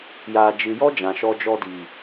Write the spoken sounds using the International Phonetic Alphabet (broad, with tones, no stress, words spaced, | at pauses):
jaː˨d͡ʒɨ˨jɔ˦ d͡ʒã˨ʃɔ˧d͡ʒɔ˧di˨